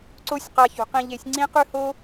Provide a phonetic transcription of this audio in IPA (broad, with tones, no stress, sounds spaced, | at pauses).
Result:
ǀ o˦ sʲ q a˧ ç ṳ˨ q ĩ˧ ʎ e˨˦ sʲ ŋ͡ǀ ĩ˦ q ʉ˦ h o˦